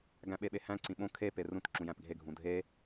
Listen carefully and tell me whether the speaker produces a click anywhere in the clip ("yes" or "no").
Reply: yes